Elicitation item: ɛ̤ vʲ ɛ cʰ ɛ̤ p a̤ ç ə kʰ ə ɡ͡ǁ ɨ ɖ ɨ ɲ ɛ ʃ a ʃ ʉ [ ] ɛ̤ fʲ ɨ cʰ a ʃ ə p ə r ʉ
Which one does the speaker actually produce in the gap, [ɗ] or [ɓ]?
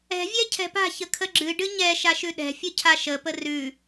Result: ɗ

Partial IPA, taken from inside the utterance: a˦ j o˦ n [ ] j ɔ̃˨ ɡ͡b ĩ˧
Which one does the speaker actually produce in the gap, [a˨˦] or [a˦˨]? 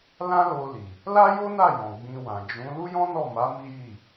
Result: a˦˨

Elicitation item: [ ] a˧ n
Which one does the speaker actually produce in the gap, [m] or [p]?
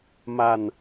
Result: m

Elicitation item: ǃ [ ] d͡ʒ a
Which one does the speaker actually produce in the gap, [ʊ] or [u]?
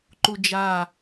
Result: u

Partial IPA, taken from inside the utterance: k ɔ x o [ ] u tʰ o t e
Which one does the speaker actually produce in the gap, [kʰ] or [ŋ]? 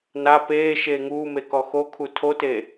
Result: kʰ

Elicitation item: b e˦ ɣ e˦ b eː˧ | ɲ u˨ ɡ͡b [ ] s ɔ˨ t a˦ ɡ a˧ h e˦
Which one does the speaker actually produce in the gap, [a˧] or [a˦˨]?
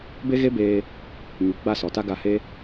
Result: a˦˨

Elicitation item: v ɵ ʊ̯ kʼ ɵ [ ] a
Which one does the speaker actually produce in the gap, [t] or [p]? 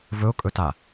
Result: t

